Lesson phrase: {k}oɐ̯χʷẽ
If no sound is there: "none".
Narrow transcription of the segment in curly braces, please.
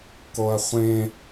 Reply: k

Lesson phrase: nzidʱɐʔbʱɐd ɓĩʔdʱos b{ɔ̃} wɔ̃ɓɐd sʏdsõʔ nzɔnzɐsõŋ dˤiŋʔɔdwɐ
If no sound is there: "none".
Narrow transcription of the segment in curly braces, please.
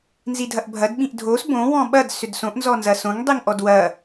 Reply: õ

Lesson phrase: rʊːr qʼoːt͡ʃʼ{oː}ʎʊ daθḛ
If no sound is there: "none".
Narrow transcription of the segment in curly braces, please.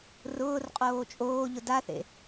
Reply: oː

